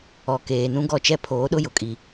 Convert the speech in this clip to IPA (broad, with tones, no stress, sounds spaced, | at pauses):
ɔ˨ k eː˨ n ũ˦ ɡ ɔ˦ t͡ʃ ɛ˦ pʰ oː˨˦ ɗ ʊ˦ j ʊ˨ kʼ i˨